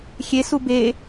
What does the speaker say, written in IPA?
xʲesu be

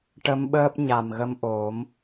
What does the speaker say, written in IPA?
ʈə˧˥mɓəː˦˥p̚ɲa˨˩m ɣə˧mʔo˨˩˦m

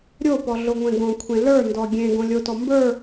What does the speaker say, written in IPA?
ɾʲopɔ ɮoŋʷẽɡõkʷʰẽ lə˞ndɔ ɡʲẽ ɡõlʲotɔ mbə˞

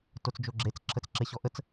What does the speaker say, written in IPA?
tot͡sd͡ʒoɡ͡ǁet͡s ǁʰət͡sǁeɕɔʔət͡s

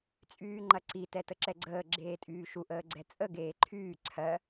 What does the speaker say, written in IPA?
t͡sʼyːŋ͡ǃɐǀi tɛtəǁɛɡ͡ǀəː ɡ͡ǁeːtʼyːʃu ʔəːɡ͡ǀɛt͡sʼə ɡeːǃʰyː ǀʰɜ

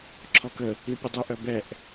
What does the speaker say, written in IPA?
ǁʰɔkə | ipʲədˤu ʔœbɛʔ

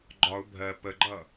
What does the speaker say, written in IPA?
ɡ͡ǃɒʊ̯ bʱɜ pəɡ͡ǃʌ

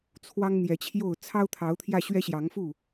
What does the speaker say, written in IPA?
t͡sʰwɑ˦ŋn̪jɛ˨˦t͡ɕʰjo˥˨ʊ̯ t͡sʰɑ˦ʊ̯t̪ʰɑ˨˦ʊ̯t̪ʰjä˧ ɕɥɛ˦ɕjɑ˨˦ŋfu˥˨

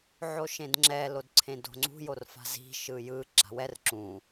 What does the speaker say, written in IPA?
ʕoʃẽdŋ͡ǁɛ lodǀʰẽdo̤ŋ͡ǀṳ jorfa̤zi̤ ʃɯjɯ ɡ͡ǁa̤wɛr ǁũ

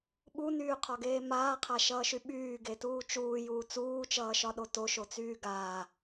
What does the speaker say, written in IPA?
ɓunyːqʰɒɡeː maːqʰaʃʌːʃy ɓyːɡetuː t͡ʃuːjuː t͡suːt͡ʃʌːʃɒɗo toʃot͡syː ɡaː

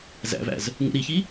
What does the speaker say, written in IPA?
zæ̰væ̰z | ŋṵɾiçi

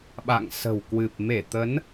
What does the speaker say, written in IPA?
ɓa̰˧˨ŋ sə̤˨˩wkwɨ˨˩p̚ me˧˩t̪ə˨˦n

